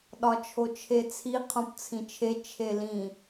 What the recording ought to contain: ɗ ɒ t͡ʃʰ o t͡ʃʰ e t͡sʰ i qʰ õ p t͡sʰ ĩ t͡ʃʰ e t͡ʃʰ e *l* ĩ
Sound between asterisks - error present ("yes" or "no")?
no